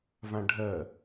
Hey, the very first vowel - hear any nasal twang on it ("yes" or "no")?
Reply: yes